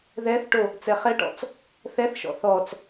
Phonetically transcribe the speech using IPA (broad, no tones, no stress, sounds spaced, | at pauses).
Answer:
ð ɛ θ ʈ o | t͡s ɛ χ ɛ ʈ ɔ̰ t͡s | θ ɛ θ ʃ ɔ̰ θ ɔ t͡s